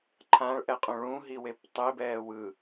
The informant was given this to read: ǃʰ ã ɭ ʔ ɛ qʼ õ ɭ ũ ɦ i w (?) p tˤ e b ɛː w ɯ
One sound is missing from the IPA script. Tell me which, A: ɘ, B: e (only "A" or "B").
B